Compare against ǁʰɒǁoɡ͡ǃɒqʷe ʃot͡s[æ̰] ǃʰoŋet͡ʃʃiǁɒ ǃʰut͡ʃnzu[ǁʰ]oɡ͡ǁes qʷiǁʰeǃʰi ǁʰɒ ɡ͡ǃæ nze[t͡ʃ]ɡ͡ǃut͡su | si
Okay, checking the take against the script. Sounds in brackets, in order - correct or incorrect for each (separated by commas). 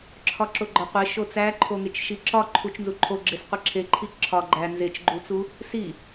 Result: incorrect, incorrect, correct